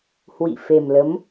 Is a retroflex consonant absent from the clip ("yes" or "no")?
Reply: yes